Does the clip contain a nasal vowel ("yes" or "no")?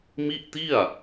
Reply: no